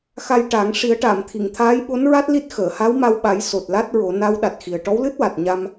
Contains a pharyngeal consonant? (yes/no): no